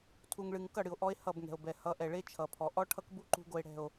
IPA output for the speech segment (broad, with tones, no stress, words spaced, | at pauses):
tʰu˨ŋɭɨ˨ŋ kʌ˦˨ɽɨ˨o̯ ʔɔ˦e̯hʌ˦˨bŋɛ̤˨o̯bɛ˨ hʌ˨˦ʔɛ˨ɭe˦ t͡ʃʰʌ˨pʰɔ˨ ʔɔ˦ʈʰʌ˦kbu˦ ǃṳ˦ ɡo˦e̯ɽɛ̤˦˨o̯